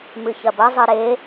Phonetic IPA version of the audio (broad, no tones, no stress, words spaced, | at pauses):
mɨçɐbɐ zˤɨɾe